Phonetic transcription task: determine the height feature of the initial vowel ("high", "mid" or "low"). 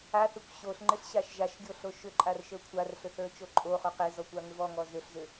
low